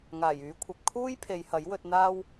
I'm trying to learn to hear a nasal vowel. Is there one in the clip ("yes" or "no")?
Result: no